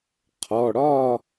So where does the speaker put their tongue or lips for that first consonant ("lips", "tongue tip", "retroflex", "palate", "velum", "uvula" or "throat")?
uvula